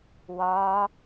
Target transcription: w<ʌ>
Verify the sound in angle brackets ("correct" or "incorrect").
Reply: incorrect